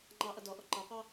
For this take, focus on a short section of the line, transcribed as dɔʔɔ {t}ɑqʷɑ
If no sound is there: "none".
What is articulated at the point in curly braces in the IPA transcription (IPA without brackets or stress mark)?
ǃ